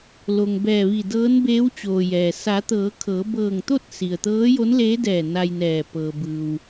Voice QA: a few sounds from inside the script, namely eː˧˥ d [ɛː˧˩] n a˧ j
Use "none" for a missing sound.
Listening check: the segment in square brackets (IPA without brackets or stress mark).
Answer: ɛː˧˩